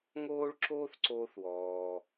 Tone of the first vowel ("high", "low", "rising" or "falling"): high